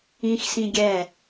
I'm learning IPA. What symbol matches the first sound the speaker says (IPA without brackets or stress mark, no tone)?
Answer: ĩ